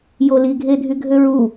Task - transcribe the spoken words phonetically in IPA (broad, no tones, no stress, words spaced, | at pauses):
joliɡʱedʱy ɡʱøɹu